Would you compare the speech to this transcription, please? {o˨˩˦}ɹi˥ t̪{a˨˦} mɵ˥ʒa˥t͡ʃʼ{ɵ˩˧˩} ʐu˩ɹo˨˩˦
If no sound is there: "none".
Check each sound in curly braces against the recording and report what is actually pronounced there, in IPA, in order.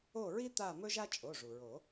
o˦˨, a˦˨, o˩˧˩

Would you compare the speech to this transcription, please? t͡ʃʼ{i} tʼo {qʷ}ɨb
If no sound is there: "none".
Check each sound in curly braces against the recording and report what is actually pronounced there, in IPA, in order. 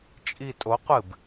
i, qʷ

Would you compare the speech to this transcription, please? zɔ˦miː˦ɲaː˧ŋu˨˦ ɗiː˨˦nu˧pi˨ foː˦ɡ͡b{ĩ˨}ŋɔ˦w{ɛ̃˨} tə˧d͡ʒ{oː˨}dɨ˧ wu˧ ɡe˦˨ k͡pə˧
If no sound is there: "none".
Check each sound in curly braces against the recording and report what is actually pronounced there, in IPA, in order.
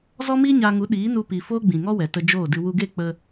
ĩ˨, ɛ˨, oː˦˨

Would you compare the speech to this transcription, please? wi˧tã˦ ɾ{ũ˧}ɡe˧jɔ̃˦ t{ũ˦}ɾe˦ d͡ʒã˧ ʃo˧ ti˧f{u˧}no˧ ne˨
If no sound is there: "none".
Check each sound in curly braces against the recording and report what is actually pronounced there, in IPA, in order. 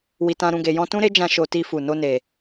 ũ˧, ũ˦, u˨

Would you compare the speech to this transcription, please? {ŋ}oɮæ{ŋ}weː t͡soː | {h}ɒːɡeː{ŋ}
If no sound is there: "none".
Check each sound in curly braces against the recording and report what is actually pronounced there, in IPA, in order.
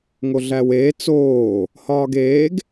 ŋ, none, h, ɡ

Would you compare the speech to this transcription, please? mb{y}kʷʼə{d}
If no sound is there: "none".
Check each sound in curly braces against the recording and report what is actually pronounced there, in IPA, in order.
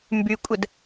y, d

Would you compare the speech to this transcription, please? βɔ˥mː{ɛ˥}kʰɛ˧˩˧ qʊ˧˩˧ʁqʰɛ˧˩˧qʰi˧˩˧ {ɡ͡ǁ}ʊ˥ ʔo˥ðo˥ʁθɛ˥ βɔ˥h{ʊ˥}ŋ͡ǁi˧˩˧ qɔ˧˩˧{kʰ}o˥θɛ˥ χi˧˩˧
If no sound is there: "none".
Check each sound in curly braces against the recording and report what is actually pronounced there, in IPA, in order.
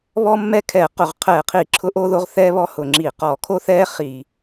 ɛ˥, ǁʰ, ʊ˧˩˧, kʰ

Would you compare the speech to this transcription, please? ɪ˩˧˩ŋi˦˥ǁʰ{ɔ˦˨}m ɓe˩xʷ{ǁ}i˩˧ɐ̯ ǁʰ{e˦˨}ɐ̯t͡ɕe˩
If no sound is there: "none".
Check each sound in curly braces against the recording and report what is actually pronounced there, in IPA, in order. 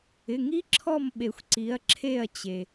ɔ˦˨, ǀ, e˦˨

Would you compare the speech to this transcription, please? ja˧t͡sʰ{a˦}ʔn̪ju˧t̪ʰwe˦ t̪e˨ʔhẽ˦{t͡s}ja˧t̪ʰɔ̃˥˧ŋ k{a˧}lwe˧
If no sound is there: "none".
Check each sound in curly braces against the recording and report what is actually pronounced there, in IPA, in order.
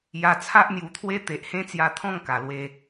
a˦, t͡s, a˨˩

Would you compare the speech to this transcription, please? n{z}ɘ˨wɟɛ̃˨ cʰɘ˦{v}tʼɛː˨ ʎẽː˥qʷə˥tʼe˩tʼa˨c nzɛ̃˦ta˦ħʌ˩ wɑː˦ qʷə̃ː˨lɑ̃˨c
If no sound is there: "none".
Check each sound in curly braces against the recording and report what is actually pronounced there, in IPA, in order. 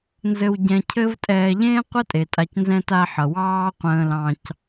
z, v

